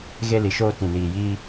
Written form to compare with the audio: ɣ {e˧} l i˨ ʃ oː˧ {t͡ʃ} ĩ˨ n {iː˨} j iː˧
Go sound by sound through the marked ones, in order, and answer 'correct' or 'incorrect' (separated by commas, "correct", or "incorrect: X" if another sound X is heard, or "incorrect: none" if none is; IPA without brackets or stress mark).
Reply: correct, incorrect: t, correct